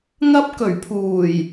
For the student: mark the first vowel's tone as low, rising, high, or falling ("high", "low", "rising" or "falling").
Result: high